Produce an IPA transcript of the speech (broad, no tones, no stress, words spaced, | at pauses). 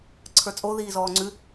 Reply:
ǀʰə˞t͡sʼo ðiːzɔːŋ͡ǀʉ